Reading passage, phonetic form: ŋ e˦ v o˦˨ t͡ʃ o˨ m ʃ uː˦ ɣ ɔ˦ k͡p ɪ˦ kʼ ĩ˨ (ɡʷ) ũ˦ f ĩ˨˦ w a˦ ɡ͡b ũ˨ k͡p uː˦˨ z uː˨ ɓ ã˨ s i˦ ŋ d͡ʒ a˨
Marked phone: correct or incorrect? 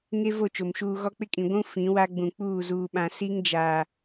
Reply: correct